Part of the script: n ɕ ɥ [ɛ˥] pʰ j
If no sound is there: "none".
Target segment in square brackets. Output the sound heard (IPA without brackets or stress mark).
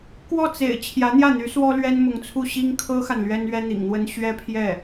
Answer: ɛ˥